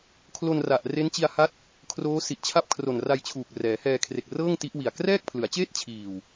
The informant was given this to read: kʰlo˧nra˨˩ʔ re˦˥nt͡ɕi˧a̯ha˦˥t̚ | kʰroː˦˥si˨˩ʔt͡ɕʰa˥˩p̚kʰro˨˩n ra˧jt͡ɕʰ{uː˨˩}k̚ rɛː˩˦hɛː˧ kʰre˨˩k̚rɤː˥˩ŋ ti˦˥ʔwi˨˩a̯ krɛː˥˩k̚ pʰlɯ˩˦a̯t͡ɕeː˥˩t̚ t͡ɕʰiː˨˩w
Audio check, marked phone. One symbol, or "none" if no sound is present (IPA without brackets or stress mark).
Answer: uː˨˩